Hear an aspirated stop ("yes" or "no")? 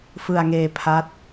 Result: yes